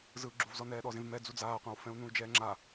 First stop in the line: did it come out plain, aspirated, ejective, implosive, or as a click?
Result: click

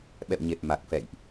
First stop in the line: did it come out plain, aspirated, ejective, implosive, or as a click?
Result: implosive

